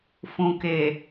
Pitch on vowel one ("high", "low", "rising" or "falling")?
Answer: low